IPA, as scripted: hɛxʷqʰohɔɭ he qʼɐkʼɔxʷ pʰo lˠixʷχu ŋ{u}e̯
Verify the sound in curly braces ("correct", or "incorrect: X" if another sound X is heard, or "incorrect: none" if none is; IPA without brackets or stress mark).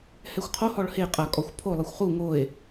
incorrect: o